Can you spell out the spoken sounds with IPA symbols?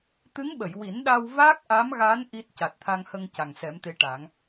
t̪ ɨ˧˥ ŋ ɓ ə˨˩˨ j w i˨˩˦ n ɗ a˧ w v a˦˥ k̚ ʔ a˧˥ m ɣ a˧˥ n ʔ i˦˥ t̚ c a˨˩ t̚ t̪ʰ a˧ ŋ h ə˧ ŋ c a˨˩ ŋ s ɛ˨˩˦ m t̪ e˧˥ ʈ a˨˩˦ ŋ

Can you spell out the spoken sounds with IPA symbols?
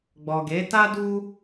ɡ͡b ɔ˨ ɡ e˨˦ t a˦ d u˦

